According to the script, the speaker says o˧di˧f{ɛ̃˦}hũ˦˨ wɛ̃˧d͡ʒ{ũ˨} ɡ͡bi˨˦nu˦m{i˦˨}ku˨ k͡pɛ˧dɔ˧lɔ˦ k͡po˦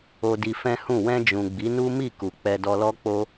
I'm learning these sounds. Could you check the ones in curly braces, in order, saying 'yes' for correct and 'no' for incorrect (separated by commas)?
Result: yes, yes, yes